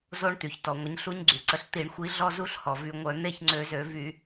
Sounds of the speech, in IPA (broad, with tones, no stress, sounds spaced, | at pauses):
z o˦˥ ɳ t̪ y˩ ç t ɔ˩ ŋʷ ə˨˥ ɲ ɬ u˦˥ ɲ ɡ͡ǀ y˩ ǀ ə˨˥ ɬ t̪ i˧˩˧ ɳ xʷ i˨˥ ɮ ɔ˥˧ z u˥˧ ɬ h ɔ˩ v y˧˩˧ ŋʷ œ˧˩˧ n̪ e˥˧ ç ŋ͡ǀ ø˧˩˧ z ø˧˩˧ v y˧˩˧